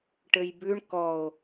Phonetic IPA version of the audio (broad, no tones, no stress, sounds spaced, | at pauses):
ʈ ɘ j b ʉ ɳ k ɔ o̯